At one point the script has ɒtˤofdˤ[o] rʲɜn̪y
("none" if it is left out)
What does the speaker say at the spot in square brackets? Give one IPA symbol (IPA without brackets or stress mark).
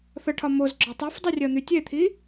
u